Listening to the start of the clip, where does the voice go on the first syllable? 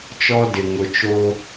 high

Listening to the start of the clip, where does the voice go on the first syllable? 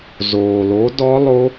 low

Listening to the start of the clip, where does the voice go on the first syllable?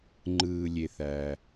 low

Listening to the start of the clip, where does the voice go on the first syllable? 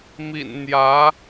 low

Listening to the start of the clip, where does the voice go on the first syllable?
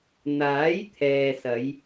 rising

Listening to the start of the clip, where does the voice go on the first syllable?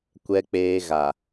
low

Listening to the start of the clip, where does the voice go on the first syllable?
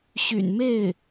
low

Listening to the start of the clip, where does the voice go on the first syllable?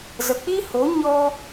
low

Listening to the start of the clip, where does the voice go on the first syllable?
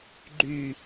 low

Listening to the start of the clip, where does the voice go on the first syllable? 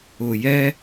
low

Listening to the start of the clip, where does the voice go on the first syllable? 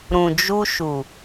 low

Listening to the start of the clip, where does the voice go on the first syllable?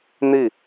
falling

